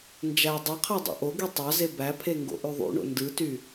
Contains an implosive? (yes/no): no